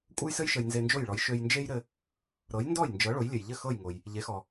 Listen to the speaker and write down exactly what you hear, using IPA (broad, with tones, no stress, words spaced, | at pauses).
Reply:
kʷʼə˥jsɘ˥j ʃə˧jnze˧nd͡ʒo˥˩jɭɔ˩˥j ʃø˧jnd͡ʒe˥jɾɘ˧ | ɾɤ˩˥jndɔ˥˩jnd͡ʒɤ˩˥ ɭo˩˥jlʲɘ˩jʎɘ˥˩ xɤ˥˩jŋo˩j | ʎe˩˥xɔ˩